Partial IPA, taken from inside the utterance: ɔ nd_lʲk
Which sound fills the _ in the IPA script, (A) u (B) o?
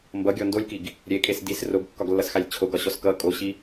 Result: B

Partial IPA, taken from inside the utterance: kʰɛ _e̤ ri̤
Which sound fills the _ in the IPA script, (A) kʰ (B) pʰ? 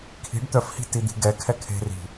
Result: A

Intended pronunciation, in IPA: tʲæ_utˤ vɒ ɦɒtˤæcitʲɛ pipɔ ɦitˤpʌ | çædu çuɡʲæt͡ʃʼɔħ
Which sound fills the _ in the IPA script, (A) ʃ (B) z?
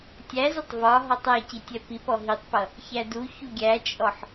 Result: B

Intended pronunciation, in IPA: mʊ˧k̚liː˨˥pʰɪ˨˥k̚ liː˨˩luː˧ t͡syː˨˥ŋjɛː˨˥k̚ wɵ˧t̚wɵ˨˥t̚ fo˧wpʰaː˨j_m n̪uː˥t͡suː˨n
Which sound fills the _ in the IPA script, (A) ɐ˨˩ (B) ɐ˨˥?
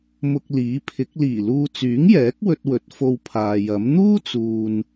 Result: B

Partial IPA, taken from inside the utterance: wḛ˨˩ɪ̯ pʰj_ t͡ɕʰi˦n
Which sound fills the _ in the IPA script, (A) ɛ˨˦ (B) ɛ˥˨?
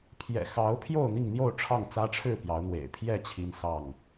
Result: B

